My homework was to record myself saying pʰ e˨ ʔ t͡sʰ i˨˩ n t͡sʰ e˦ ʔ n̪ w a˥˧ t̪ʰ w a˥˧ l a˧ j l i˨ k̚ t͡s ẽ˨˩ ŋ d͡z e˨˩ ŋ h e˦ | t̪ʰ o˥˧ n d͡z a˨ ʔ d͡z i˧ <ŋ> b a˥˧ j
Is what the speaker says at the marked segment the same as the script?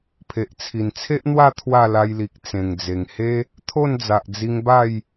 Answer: yes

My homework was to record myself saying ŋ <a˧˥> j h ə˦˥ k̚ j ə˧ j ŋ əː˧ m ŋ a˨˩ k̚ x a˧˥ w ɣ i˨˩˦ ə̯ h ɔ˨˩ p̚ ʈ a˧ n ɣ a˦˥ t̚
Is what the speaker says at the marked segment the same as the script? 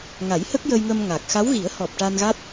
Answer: no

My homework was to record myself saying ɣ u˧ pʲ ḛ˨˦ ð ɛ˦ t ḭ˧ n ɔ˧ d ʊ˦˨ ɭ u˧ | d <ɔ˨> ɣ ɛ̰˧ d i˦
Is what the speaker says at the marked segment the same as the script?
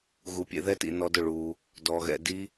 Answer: no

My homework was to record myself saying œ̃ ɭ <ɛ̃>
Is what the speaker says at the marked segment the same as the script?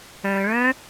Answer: no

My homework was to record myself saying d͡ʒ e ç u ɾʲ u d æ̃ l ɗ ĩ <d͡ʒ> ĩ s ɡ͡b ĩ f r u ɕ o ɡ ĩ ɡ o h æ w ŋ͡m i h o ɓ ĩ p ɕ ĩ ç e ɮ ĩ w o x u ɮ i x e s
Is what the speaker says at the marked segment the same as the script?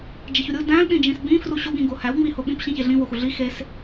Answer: yes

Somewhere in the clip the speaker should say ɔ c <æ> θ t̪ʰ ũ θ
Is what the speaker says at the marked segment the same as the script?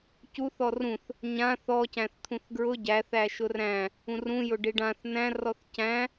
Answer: no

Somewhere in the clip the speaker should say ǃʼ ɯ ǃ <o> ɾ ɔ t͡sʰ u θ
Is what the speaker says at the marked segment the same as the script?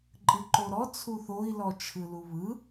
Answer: yes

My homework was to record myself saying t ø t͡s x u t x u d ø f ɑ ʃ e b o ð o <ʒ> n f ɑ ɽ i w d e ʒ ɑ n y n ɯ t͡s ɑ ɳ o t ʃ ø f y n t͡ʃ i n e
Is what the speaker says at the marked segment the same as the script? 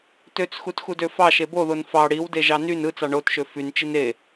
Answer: no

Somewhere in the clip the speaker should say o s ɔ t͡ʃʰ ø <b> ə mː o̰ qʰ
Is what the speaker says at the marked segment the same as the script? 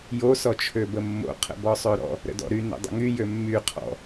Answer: yes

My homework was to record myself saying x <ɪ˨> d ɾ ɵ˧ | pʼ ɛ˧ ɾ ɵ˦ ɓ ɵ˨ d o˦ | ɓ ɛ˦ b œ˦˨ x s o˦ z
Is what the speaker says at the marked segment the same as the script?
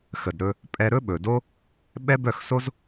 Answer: no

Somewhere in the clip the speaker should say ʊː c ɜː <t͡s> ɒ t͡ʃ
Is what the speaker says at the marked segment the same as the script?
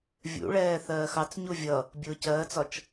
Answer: yes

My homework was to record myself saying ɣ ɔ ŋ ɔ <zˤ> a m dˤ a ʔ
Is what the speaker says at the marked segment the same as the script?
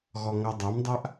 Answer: no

